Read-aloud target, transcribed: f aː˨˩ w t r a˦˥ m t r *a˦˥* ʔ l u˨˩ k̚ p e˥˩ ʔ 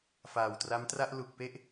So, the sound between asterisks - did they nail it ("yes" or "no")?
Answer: no